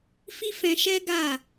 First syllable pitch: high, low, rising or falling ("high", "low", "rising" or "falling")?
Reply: high